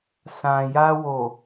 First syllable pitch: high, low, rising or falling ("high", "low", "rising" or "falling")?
low